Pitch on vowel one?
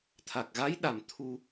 low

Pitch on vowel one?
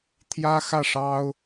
high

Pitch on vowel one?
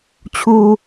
low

